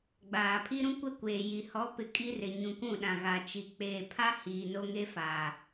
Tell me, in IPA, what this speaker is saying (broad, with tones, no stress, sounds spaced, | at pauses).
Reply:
ɡ͡b aː˨ pʰ i˦ ɾ ũ˦ kʷ ɛ˦ kʷ eː˨ j i˨ h ɔ˨˦ p ɪ˨ kʼ i˦ r ɪ˨ ɲ ũ˨ k ũ˦˨ ɗ ã˨ ɣ a˨ t͡ʃ i˨ k͡p eː˨ pʰ a˦ h iː˨ n o˦ ŋ e˦ f a˨